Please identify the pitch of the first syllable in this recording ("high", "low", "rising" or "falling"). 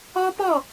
high